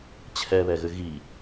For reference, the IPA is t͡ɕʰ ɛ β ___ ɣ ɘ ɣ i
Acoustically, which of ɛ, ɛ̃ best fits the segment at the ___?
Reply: ɛ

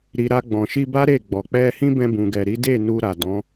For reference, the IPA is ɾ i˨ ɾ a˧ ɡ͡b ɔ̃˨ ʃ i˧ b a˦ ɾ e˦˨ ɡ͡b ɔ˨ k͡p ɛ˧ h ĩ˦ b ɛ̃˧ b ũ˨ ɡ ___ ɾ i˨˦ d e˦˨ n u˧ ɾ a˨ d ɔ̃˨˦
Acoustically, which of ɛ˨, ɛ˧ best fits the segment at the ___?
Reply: ɛ˨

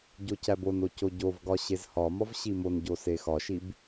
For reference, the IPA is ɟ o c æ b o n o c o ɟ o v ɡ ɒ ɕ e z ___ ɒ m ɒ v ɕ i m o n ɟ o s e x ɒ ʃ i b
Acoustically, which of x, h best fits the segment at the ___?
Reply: h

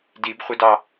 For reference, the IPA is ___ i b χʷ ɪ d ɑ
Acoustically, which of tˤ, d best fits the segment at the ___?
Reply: d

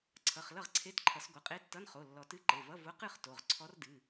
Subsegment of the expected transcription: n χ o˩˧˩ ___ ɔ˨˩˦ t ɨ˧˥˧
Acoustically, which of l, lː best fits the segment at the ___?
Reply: lː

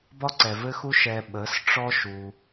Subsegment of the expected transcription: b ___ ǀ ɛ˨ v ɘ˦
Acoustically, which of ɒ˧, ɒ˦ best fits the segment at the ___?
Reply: ɒ˦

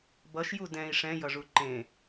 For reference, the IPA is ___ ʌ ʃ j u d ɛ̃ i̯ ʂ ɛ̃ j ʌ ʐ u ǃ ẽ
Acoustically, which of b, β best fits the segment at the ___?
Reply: b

